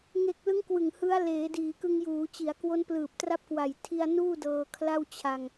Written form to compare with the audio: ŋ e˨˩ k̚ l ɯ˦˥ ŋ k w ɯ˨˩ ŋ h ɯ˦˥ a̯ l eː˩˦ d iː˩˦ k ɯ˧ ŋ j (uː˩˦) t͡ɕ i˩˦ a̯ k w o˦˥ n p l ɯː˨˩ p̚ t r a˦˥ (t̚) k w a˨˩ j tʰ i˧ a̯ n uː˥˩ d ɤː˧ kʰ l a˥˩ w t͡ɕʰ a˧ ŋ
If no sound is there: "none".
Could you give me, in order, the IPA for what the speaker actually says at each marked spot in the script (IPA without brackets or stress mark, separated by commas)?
uː˩˦, p̚